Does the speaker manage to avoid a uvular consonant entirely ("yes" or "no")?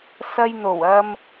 yes